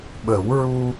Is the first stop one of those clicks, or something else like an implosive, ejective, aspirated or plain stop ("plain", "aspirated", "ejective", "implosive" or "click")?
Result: implosive